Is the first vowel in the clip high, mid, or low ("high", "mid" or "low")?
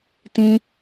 high